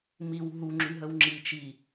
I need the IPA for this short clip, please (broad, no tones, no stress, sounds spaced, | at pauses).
m i w ɦ u ŋ͡ǁ y ɦ ə w ŋ͡ǁ i t͡ʃ i